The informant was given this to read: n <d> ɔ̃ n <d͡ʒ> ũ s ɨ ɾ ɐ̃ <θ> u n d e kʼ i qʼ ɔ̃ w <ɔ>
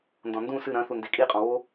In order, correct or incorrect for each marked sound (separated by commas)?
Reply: correct, incorrect, correct, incorrect